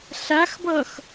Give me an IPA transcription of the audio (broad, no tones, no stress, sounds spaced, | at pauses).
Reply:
ɬ a x b ʌ x